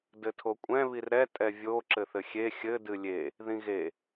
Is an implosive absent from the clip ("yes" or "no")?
yes